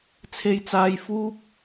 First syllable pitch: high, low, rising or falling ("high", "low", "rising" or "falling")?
high